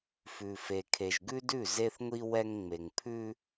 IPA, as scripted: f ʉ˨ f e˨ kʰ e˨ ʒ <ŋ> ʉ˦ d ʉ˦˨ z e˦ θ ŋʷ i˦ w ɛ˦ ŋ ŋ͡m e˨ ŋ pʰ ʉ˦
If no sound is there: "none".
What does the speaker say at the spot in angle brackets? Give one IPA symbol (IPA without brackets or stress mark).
ɡ